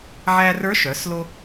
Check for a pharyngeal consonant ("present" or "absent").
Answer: present